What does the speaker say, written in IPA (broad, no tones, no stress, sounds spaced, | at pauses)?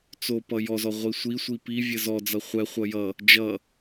t͡s o p ʌ j ɔ z ɔ ʁʷ i sʷ i sʷ i p i vʲ ɘ z ɔ d͡z ʌ χʷ ɛ χʷ ʌ j ʌ | d͡ʒ ʌ